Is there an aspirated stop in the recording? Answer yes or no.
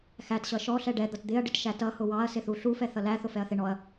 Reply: no